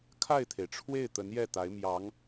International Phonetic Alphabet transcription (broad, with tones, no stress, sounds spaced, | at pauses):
kʰ a˥˩ ɪ̯ t̪ʰ e˩ ɪ̯ ʈ͡ʂʰ w e˥˩ ɪ̯ t̪ ə˧˥ n j ɛ˥˩ t̪ a˧˥ ɪ̯ m j ɑ˧˥ ŋ